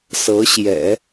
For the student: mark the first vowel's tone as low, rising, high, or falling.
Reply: rising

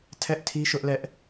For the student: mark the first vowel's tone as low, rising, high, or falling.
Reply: high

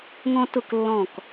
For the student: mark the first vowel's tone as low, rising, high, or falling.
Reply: high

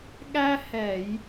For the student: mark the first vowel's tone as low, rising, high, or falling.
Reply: high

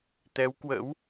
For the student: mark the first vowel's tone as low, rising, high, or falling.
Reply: rising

